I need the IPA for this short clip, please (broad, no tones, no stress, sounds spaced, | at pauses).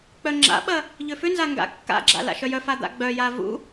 k͡p œ ŋ͡ǁ a̰ ɓ ɐ | ʎ ʏ f ʏ n z a ŋ ɡ a̰ kː a̰ ɡ͡ǁ a̰ l a̰ ʃ œ j œ f a d̪ a̰ ɡ͡b œ j a v ṵ